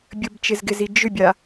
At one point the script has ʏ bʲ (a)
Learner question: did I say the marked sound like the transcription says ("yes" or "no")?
yes